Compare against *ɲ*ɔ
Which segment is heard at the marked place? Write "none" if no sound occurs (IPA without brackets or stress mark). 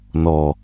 n